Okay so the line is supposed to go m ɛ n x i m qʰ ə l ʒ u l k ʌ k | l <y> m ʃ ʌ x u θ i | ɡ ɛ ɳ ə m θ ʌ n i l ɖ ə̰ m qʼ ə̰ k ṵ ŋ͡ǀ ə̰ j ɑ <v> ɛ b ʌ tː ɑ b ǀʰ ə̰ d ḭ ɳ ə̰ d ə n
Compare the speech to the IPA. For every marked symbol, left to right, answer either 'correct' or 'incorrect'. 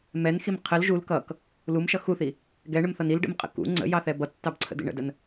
incorrect: u, incorrect: θ

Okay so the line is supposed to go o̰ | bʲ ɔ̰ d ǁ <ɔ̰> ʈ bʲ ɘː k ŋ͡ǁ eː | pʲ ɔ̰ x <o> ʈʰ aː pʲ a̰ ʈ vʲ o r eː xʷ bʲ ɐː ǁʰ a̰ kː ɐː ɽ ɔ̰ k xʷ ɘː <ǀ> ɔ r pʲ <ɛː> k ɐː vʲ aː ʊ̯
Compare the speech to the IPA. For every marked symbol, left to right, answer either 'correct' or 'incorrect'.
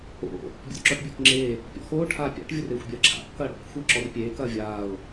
incorrect: ɔ, incorrect: oː, incorrect: ǁ, incorrect: eː

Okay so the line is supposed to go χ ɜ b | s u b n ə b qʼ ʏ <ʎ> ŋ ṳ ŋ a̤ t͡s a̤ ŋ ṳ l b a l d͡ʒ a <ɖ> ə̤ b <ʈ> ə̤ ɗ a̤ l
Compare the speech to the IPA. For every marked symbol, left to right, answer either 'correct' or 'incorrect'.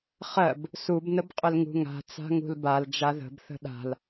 incorrect: l, incorrect: ð, incorrect: θ

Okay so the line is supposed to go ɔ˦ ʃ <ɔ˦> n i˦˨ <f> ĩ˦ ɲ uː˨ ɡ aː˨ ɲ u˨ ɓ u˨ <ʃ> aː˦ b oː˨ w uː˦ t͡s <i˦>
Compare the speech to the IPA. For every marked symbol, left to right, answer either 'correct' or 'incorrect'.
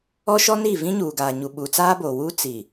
correct, incorrect: v, incorrect: t͡s, incorrect: i˨

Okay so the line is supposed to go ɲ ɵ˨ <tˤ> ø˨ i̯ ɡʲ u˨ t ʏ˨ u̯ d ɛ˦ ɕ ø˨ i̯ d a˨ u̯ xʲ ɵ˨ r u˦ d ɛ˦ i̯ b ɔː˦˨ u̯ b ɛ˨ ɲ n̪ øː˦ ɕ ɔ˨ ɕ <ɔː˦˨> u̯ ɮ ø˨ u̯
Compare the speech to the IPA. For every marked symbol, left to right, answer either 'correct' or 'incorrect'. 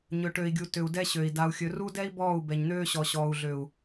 incorrect: ʈ, incorrect: ɔː˨

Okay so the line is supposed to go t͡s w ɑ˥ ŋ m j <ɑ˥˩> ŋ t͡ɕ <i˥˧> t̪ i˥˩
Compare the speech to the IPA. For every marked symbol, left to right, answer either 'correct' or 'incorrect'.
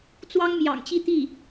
incorrect: ɑ̰˨˩, correct

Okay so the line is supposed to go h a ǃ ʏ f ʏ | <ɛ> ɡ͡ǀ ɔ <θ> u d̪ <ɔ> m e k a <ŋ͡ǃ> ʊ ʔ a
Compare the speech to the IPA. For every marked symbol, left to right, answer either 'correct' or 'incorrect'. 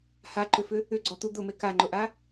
incorrect: ʏ, incorrect: t̪, incorrect: ʊ, correct

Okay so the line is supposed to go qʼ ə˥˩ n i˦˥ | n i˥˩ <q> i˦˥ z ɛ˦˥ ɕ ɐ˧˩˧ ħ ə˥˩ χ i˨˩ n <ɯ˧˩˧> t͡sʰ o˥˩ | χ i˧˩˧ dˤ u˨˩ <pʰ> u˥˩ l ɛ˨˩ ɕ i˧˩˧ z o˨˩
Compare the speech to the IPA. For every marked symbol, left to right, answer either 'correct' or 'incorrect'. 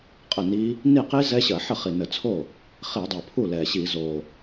correct, incorrect: ə˧˩˧, correct

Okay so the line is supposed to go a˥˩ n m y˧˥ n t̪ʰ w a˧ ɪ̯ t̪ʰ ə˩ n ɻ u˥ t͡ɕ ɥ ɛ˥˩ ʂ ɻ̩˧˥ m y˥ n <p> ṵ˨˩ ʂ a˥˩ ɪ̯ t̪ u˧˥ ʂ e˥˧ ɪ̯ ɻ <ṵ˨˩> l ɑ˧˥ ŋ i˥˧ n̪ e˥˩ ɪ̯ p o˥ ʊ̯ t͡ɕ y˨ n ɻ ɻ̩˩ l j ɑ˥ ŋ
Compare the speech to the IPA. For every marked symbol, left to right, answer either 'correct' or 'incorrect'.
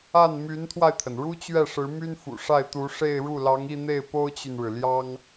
incorrect: f, incorrect: u˥˩

